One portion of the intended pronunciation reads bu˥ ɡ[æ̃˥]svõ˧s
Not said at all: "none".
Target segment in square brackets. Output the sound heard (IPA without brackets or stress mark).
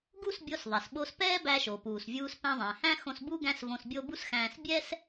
æ̃˥